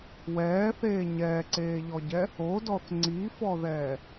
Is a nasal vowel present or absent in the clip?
absent